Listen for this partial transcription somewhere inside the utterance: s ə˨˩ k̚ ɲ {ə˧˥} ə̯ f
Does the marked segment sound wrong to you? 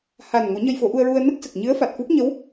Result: yes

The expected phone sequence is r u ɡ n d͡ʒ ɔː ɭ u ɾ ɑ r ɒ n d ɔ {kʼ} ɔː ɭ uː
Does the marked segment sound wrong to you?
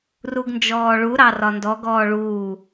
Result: yes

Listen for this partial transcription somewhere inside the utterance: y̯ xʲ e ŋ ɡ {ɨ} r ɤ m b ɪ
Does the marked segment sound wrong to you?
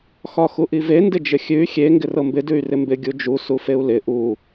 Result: yes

